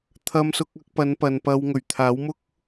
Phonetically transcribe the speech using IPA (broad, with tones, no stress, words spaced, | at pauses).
t̪ʰɐ˧msʊ˧k̚ɐ˧k̚pɐ˨˧n pɐ˨npɐ˧w ŋɵ˨˩ɥt̪ʰaː˨˥wmʊ˥k̚